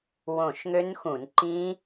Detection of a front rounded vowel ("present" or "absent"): present